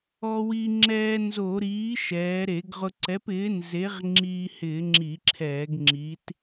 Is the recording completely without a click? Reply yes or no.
no